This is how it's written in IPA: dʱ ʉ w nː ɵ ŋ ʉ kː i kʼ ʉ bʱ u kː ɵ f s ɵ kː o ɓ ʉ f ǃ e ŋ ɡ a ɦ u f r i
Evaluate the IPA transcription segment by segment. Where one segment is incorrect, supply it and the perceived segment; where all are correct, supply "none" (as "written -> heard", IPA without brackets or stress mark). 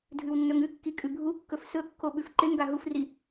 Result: none